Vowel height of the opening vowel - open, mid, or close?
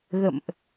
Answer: mid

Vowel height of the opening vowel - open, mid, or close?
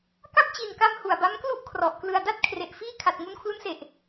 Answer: open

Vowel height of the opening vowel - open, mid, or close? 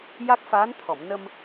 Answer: open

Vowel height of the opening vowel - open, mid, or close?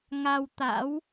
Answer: open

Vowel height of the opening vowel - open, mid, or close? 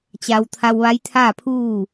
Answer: open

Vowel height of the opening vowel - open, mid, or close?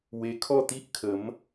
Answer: mid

